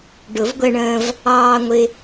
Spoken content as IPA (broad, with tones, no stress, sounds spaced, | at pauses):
ɖ ʊ˨˩˦ v ɡʷ ɛ˧ ɳ ə̃ː˧ v | ɑː˧ ŋʷ ɪ˧